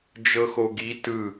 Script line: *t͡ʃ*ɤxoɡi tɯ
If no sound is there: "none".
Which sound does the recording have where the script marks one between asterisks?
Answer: d͡ʒ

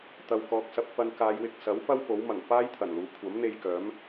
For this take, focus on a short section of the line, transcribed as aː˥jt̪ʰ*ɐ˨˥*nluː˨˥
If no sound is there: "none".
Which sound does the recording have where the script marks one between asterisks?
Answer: ɐ˨˩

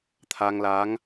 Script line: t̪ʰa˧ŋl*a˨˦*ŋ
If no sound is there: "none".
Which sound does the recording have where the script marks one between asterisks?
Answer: a˨˦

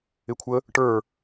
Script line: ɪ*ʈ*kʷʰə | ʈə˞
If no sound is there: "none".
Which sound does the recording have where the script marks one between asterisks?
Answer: none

